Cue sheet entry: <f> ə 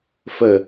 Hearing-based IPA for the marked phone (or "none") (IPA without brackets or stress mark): f